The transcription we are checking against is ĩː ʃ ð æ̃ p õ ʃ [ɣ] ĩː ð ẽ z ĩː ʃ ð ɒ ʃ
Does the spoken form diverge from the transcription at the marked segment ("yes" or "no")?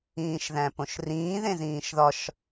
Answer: yes